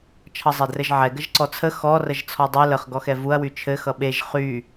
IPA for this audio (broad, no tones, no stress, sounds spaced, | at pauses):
t͡ʃʰ ʌ zˤ ɛ d r ɘ ʒ ʕ ɛ ɡ ə ʒ ǀ ɔ t͡sʰ ə x ɔ r ə ʒ t͡sʰ ɔ dˤ u l ə χ ɡ ɔ x ɛ v u ɐ̯ w y t͡ʃʰ ɘ x ʌ ɓ e ʒ χ y